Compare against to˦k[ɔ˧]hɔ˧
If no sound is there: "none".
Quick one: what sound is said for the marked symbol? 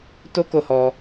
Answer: o˧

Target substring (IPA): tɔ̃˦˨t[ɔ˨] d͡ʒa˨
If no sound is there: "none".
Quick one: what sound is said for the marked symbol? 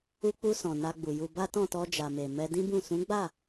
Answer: ɔ˧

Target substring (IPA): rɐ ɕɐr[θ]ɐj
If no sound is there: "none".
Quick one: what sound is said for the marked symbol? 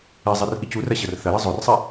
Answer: θ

